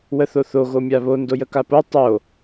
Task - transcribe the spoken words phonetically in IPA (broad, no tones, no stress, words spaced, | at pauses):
wəθoθo ɣomʲaβo ndojəkapo tˤo